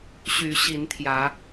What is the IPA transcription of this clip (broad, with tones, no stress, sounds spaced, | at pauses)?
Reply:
ɕ y˨˦ ɕ i˨˦ n t̪ʰ j ä˨˦